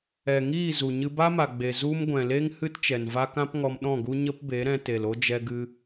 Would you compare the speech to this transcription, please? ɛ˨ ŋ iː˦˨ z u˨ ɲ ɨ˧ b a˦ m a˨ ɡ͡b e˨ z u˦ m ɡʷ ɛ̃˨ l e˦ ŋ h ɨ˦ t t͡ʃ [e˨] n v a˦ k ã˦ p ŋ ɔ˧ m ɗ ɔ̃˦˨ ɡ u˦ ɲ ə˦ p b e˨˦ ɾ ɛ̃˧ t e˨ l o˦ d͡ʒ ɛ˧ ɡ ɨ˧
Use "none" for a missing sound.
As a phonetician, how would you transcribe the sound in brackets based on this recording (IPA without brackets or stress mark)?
ɛ˨